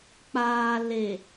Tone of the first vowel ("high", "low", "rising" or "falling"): low